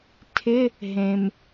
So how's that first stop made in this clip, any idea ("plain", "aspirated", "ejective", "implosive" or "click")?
aspirated